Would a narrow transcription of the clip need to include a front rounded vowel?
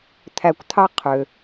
yes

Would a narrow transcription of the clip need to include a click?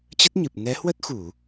no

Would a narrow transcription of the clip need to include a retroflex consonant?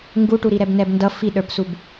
yes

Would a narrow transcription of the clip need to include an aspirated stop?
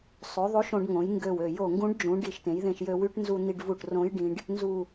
no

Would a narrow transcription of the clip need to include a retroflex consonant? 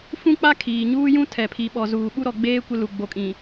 no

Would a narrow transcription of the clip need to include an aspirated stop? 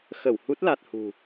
no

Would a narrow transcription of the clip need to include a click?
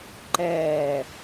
yes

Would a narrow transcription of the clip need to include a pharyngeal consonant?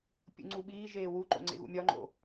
no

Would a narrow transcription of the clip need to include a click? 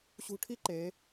yes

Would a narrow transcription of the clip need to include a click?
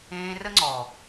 yes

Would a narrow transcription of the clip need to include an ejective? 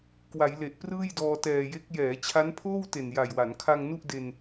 no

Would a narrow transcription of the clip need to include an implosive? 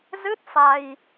no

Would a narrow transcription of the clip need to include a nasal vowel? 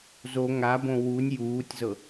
yes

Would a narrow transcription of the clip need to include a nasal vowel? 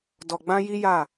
yes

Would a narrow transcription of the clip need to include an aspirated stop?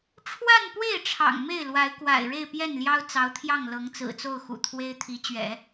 yes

